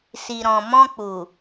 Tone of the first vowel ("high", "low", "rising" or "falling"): low